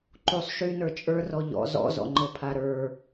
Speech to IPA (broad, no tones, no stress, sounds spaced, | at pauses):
ǃ u sˤ ʃ y n ə˞ t͡ʃʼ ə˞ r ɔ ʎ ɔ̰ z ɔ̰ z ɔ̰ ŋ͡ǃ ɤ pʰ a ɾ ə˞